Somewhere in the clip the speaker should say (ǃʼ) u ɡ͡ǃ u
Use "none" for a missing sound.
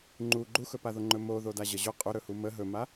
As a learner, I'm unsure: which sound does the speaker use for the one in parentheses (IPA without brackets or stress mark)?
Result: ŋ͡ǃ